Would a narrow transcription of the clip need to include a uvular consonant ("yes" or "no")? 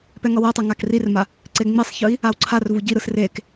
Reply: no